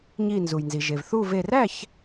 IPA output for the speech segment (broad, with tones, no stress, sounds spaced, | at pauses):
ɲ i˧˩ n z u˩ j n z i˩ ʒ e˩ v θ u˥˨ v e˧˩ r æ˥˨ ç